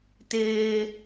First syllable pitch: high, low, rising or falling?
high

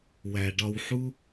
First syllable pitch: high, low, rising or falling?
low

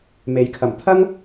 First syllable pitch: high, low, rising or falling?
rising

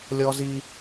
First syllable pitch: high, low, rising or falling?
high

